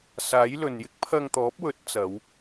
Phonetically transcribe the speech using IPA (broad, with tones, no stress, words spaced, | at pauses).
saː˨˥j lɵ˨n jɪ˥k̚pʰɐ˧ŋt̪ɔː˨˥p̚wɵ˨˥t̚ t͡sɐ˨˧w